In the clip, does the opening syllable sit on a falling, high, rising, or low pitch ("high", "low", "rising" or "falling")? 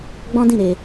high